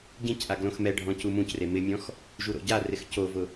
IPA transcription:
ɟ ĩ c ʔ a ɡ l õ x m ɛ ɖʱ ɔ̃ c u m ũ c r e m ɪ mʲ ɔ̃ x | ʒ u ɾ o̰ ɟ a r ɪ x c o v ʊ

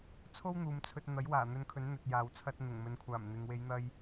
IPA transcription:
t͡sʰ o˥ w n̪ uː˨ m t͡sʰ ɵ˧ t̚ n̪ ɐ˨˥ j w aː˨˩ n̪ ɵ˧ n kʰ ɵ˨˥ n n̪ ɵ˧ t̚ j aː˧ w t͡sʰ ɐ˥ t̚ n̪ ʊ˨˩ ŋ m ɵ˨ n kʷʰ aː˨˩ m n̪ ɪ˨ ŋ w e˨˧ j n̪ ɐ˧ j

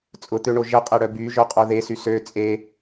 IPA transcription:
t͡sʼ ʊ t̪ ø ɳ o ʒ ə qʼ ɛ ɽ œ b y ʒ œ qʼ o ð e s y s ø t͡sʼ e

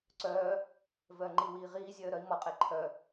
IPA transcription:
ǀ œː | v œː ŋ͡ǃ i w iː ʁ iː zʲ œː ɾ œ i̯ m ɔ qʼ e ǃʰ œ

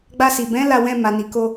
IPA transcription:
ɡ͡b a˧ s i˨ b ɛ̃˨˦ l a˦˨ w ɛ̃˧ m a˨ n i˨ k o˧

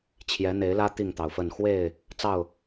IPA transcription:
t͡ɕʰ j ɛ˨˦ n̪ e˨˦ ɪ̯ l ä˦ t̪ i˥˨ ŋ t̪ ɑ˩ ʊ̯ f ə˥˨ n x w e˥˨ ɪ̯ | t͡s ɑ˥˨ ʊ̯

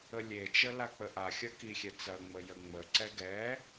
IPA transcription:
ə lʲ e t͡ʃ ə l a k͡p ə ʔ a xʲ ɐ k i xʲ ɛ t͡s ɐ ŋ͡m ə j ə ŋ͡m ə ǀ ɛ ɡ ɛ

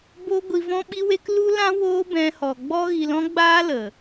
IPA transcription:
b o˧ ɡʷ i˧ v ɔ̃˦ ɓ i˦ w e˦ k l u˦ l ã˦ w oː˦ b ɛ̃˧ h ɔ˨ ɡ͡b ɔ˦ ɣ i˧ l ɔ̃˦ ɡ͡b aː˦ l ə˨

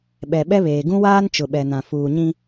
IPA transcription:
ɓ ɛ˨ ɓ ɛ˦ β eː˨ ɡ ũ˦ w aː˦ n t͡ʃ ʊ˨ ɓ ɛ˨ n ã˨ f uː˨ ɲ ĩ˦

